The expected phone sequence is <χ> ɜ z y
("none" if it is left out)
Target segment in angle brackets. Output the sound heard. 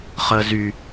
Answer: χ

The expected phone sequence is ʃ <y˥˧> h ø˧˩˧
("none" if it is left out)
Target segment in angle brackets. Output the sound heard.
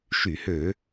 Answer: y˧˩˧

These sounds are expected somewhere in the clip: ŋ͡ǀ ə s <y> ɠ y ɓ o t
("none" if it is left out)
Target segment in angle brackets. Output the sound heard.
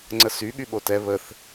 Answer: y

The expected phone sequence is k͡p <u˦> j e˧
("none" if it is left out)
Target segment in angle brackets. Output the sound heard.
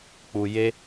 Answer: u˨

